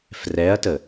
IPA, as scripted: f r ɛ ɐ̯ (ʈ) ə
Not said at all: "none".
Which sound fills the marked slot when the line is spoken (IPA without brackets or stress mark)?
t